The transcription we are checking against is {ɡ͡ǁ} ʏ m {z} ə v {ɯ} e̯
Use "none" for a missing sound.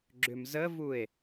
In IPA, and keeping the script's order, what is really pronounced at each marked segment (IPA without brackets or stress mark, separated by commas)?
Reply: ɡ͡ǁ, z, u